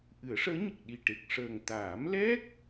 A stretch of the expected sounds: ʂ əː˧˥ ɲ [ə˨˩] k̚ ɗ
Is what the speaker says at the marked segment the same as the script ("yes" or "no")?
yes